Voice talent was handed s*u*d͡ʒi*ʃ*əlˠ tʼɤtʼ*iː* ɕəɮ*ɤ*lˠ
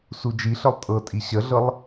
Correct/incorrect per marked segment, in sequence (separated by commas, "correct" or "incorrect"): correct, incorrect, incorrect, correct